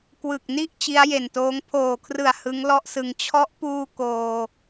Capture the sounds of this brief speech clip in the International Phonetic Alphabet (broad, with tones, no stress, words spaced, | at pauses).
kwɯ˨˩k̚ni˥˩ʔ t͡ɕi˦˥a̯je˨˩ntoː˦˥ŋ pʰoː˨˩kʰrɯ˨˩a̯ hɯ˦˥ŋlɔ˥˩ʔsɯ˧ŋ t͡ɕʰɔ˦˥ʔpuː˧ koː˧